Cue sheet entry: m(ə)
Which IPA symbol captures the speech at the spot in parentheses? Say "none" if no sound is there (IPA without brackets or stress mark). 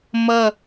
ʌ